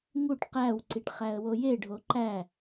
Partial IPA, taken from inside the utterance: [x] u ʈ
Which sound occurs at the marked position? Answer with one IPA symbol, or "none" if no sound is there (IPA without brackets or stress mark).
ŋ